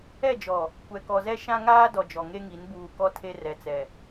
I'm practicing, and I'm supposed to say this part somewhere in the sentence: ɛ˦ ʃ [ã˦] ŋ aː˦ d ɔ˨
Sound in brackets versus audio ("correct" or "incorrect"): correct